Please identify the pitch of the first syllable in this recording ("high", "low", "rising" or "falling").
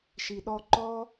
low